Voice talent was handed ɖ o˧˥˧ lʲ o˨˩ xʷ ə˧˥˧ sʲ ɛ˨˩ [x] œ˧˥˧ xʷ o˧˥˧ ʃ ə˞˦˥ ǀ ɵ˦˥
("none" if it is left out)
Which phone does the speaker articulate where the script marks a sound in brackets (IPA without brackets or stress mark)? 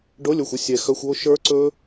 x